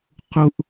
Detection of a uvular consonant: present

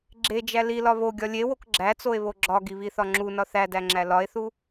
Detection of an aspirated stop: absent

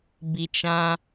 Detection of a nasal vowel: present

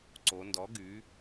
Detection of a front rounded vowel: present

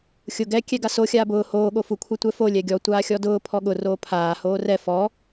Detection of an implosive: present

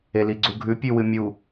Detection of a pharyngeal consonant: absent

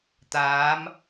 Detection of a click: absent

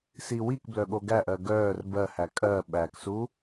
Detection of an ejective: present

